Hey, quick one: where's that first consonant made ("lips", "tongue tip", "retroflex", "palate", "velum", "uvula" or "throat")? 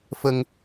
lips